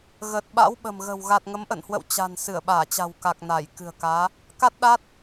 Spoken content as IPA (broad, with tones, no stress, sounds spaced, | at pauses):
ɣ ə˨˩ t̚ ɓ a̰˧˥ w ɓ ə̤˨˩ m ɣ ə̤˨˩ w ɣ a˨˩ t̚ ŋ ə˨˦ m ʔ ə̰˧˨ n h w ə̰˧˨ w t͡ɕ a̤˨˩ n s ɨ˧˩ ə̯ ɓ aː˧˩ t͡ɕ a̤˨˩ w k a˨˩ k̚ n a˧˩ j k ɨ̤˨˩ ə̯ k aː˨˦ | k a˦˥ t̚ ɗ a˦˥ t̚